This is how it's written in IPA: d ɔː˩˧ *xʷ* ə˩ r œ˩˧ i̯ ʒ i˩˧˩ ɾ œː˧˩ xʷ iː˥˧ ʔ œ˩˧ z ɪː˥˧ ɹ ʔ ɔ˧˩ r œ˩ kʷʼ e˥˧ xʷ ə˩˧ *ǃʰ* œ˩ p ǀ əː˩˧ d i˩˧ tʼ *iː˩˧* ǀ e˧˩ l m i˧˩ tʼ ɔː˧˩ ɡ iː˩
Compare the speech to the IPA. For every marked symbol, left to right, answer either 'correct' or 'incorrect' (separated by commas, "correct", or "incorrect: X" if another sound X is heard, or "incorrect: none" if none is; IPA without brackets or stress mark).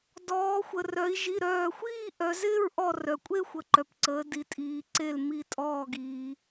correct, incorrect: ǃ, correct